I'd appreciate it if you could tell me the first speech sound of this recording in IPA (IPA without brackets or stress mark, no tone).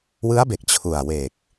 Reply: w